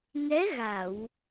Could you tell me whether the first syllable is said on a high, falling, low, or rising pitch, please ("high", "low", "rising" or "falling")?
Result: rising